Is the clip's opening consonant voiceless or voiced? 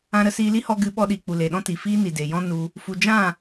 voiced